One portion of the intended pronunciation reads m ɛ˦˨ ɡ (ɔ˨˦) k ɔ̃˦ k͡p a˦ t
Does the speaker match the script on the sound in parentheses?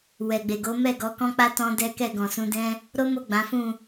yes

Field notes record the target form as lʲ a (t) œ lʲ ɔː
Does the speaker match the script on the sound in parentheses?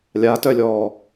yes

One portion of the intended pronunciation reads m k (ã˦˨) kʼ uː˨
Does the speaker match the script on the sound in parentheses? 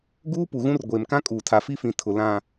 no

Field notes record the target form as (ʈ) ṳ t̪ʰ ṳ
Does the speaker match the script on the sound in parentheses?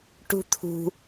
yes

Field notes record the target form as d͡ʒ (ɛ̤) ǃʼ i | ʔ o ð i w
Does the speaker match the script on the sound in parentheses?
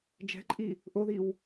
yes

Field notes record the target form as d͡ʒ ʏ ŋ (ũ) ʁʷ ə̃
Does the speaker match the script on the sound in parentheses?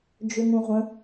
yes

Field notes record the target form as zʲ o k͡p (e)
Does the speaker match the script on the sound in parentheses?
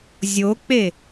yes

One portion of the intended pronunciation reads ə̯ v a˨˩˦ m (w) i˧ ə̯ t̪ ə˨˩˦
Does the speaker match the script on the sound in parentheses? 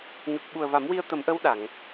yes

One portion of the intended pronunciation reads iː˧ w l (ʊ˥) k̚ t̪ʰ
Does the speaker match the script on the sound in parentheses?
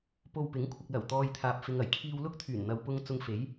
yes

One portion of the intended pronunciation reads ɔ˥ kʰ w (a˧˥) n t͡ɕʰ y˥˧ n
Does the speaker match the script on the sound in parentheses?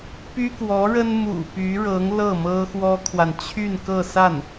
no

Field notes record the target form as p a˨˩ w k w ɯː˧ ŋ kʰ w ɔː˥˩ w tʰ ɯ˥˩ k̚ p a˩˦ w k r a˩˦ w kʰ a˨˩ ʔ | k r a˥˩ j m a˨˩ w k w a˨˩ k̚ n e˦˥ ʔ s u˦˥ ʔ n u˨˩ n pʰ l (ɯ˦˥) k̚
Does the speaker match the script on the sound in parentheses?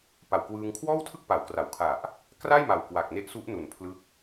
yes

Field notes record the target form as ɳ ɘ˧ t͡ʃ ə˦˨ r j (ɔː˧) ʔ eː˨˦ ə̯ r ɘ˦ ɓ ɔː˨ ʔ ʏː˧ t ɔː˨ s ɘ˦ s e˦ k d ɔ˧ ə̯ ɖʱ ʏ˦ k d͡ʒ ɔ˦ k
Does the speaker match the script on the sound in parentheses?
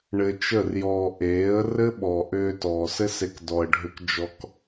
yes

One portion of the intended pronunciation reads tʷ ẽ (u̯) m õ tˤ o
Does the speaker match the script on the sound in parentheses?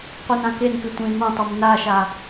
no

